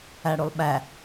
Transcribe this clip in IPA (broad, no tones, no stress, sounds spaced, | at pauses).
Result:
æ ɽ u lˠ ɓ æ